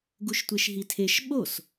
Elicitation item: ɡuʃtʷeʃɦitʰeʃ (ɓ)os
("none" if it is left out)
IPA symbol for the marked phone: ɓ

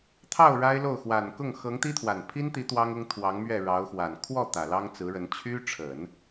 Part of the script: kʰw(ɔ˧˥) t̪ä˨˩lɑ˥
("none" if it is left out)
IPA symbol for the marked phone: ɔ˥˩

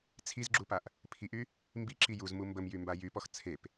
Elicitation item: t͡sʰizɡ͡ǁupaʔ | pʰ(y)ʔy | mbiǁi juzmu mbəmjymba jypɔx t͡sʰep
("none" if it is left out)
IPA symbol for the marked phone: i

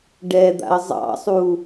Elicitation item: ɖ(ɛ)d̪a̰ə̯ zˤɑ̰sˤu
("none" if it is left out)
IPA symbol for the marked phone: ɛ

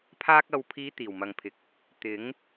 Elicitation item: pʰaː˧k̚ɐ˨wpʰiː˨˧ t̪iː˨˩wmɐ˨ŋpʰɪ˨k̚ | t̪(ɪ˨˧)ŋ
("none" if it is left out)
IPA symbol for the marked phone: ɪ˨˥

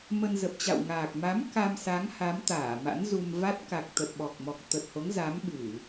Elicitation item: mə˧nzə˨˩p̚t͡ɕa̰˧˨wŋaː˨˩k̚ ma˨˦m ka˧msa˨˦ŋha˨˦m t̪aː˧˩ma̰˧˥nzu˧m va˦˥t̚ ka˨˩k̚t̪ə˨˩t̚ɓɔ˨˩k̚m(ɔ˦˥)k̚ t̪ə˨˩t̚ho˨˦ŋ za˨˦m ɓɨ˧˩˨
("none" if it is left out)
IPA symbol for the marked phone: ɔ˨˩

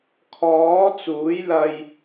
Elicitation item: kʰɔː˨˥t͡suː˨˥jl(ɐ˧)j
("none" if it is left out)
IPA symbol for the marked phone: ɐ˧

